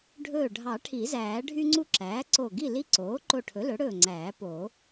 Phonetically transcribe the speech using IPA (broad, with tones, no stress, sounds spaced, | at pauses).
ɖʱ ɵː˧˩ ɖʱ ɑ˨˩˦ ʈʰ i˨˩˦ z æː˨˩˦ ɖʱ y˦ ŋ͡ǀ u˦ ǁ æː˩˥ ǀ o˧˩ ɡ i˥˨ l i˦ ǀ oː˩˥ ǃ o˧˩ ʈʰ ɵ˩˥ l ɵ˩˥ ɽ ɵː˧˩ ŋ͡ǀ æː˨˩˦ p oː˨˩˦